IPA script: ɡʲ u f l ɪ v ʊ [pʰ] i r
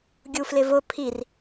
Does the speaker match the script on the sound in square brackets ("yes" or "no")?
yes